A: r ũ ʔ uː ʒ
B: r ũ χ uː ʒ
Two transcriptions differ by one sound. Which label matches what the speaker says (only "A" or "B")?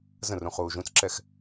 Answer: B